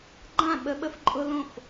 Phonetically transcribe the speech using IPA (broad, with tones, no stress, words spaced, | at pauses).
ɡ͡ǃã˥˩ɓə˦ ɓə˦fǃʼʊ˦ lõ˥˩f